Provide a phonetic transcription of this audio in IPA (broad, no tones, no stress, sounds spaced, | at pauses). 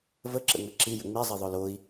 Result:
v ə ǁ ə̰ ŋ͡m ə ǁ i j ə̰ ŋ͡m i zˤ i ðˤ o l o i̯